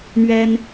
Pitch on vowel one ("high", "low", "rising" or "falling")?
high